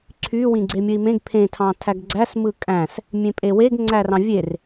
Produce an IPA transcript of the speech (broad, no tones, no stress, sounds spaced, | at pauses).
ǀʰ y w ĩ ɡ͡ǀ e mʲ ɯ i̯ m ẽ ɡ pʰ ẽ tʰ ɑ̃ tʰ æ ɡ ɡ͡ǀ æ s m ɯ kʼ æ̃ s | mʲ ẽ pʼ e w e ɡ ŋ͡ǀ æ r ɑ̃ vʲ e r